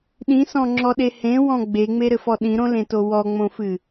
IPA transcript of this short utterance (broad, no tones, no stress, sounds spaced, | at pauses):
ɗ ĩ s ɔ̃ ŋ͡ǁ ɔ ɗ e h ẽ w ɔ̃ ɡ͡b e ŋ͡m e ɾ ɘ f ɔ ɗ ĩ ɾ õ l ẽ t o w ɔ ŋ͡m õ f ɨ